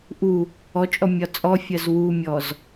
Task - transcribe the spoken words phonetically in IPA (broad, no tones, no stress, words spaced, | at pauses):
ʔu | ɔt͡ʃʼɔ mʲɒt͡sʼɔfʲɜz wumʲɔz